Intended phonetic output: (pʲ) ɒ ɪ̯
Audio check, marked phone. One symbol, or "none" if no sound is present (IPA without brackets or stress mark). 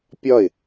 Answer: pʲ